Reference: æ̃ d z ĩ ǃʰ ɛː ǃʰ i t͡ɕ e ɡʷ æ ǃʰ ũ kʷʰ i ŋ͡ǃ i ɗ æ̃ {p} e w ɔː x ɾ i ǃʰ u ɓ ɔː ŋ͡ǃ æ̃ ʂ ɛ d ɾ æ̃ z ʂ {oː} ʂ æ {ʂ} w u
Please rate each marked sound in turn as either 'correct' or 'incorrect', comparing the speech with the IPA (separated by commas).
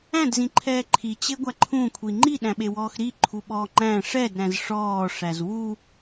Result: incorrect, incorrect, incorrect